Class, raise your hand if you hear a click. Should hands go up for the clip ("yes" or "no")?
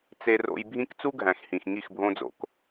no